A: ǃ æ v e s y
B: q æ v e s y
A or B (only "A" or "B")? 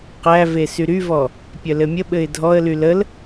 B